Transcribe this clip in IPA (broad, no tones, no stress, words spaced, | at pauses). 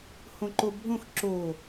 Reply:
hõǃobʱõx ǁo